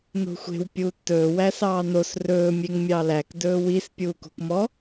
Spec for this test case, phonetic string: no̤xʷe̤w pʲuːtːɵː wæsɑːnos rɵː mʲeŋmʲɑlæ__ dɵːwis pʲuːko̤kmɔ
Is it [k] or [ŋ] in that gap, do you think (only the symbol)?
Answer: k